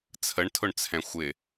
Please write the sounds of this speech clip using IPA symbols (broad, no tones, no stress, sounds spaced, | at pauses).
t͡sʰ ə ɳ tʰ ʊ ɳ t͡sʰ ɛ̃ xʷ ɪ